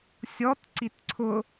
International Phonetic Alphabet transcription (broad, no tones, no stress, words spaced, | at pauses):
sʲɔt ǀitǀʰʊ